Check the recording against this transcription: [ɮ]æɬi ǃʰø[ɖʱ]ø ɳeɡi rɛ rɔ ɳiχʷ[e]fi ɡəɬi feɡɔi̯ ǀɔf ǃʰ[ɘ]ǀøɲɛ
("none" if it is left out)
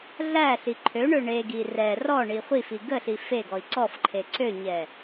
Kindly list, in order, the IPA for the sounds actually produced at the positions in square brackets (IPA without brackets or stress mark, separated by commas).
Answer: ɮ, ɳ, i, e